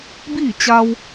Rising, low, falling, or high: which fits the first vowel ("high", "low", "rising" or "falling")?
falling